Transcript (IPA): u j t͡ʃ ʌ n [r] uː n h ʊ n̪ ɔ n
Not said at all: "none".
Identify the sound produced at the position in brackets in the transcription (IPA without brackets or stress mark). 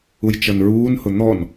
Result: ɹ